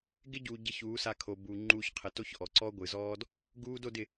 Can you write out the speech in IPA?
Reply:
ɡɪ˦ɟuː˨ɟɪ˨˦ç uː˨˦sa˧ kʰo˨ bu˨ ŋ͡ǃuː˧çqʰə˨to˦ç ʔɔ˨ǀɔ˦ɡʷɨ˨zɔː˦d | ɡuː˦do˦d ɪ˧

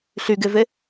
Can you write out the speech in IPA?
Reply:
ɬyɡeve

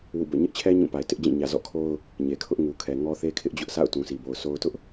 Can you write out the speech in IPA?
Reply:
wṵ˦˨bɛ̰˦˨ ɲɪ˦ʔt͡ɕʰɛ˦ ɲũ˦˨pa˨ɪ̯tɪ˦ʔd͡ʑĩ˦˨ ɲä˨ zɔ̰˦˨kʰo˦ʊ̯ | ɲe˨kʰʊ˦ʔŋu˨ kʰɛ˨ŋɔ˦ θe˦kʰɪ˦ʔd͡ʑʊ˦ʔsʰa̰˦˨ʊ̯ tũ˨sʰi˨bo˨ʊ̯sʰo˦ʊ̯ tʊ˦ʔ

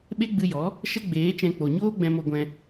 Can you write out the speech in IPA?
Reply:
ɓe˦ɡ͡bɨ˧jɔ˨˦ | ʃə˦ɡ͡beː˨˦t͡ʃɛ̃˧ k͡po˨ɲoː˦ ɡ͡bɛ̃˧mo˧ɡʷɛ̃˧

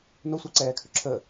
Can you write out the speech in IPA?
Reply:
nosʷæǀɛːkʰʉ ǁʰə

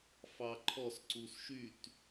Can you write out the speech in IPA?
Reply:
fɑǃʰɔs ǀusʃyt

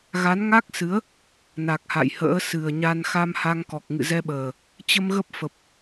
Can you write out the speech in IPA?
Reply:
ɣa˨˦nŋa˦˥k̚sɨ˨˦ə̯ | na˨˩k̚ha̰˧˨jhə̰ː˧˥ sɨ˨˩ə̯ɲa˧n xa˧mha˧ŋkɔ˨˩k̚ ŋɨ̰˧˨zɛ˧ɓəː˨˩ | t͡ɕə˧mɣə˦˥p̚ fə˨˩p̚

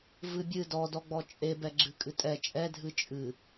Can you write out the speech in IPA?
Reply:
vɨbʲɨ dɔdɔɡ͡bɔ t͡ʃʼebɛɡ͡ǁɨ kʼɨtʼɛ t͡ʃʼɛdʱɨ t͡ʃʼɨ

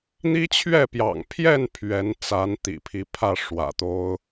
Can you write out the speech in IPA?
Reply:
n̪i˦t͡ɕʰɥɛ˥˨pjɑ̰˨˩ŋ pʰjɛ˥˨n pʰɥɛ˨˦nt͡sa˨˦n t̪ḭ˨˩pʰi˦pʰä˥˨ ʂwä̰˨˩t̪o˦ʊ̯

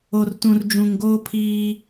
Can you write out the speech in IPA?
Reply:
o˨rtũ˨rd͡ʒũ˨ŋ ɡoː˦pʰiː˦

